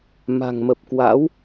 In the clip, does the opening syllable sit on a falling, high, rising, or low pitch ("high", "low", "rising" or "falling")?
low